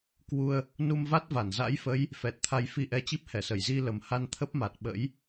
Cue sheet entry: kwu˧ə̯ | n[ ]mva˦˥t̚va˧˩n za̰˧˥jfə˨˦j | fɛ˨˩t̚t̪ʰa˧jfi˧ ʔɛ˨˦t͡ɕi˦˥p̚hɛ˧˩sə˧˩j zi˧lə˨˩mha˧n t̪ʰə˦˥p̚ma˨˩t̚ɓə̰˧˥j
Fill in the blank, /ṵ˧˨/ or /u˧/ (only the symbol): u˧